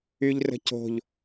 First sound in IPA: y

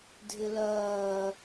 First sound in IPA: dʱ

